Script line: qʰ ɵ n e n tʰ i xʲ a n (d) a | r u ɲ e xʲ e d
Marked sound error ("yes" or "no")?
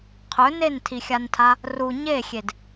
yes